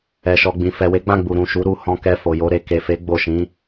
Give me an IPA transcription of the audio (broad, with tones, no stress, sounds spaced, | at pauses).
ɛ˨ ʃ ɔ˨ ɡ͡b ĩ˨ f ɛ˨ w e˨˦ ɡ͡b ã˦˨ ɡ͡b u˨ ɾ ũ˨ ʃ u˨˦ ɾ u˧ h ɔ̃˧ k ɛ˧ f o˨ j o˨˦ ɾ e˧ k e˨ f e˨˦ ɡ͡b o˦˨ ʃ ĩ˨˦